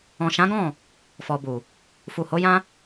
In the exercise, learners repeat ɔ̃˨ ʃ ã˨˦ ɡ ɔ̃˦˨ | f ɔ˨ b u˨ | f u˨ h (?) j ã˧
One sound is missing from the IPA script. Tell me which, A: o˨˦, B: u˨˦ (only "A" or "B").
A